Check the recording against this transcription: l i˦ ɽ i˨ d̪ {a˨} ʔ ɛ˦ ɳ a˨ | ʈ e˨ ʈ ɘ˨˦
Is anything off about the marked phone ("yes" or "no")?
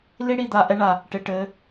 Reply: no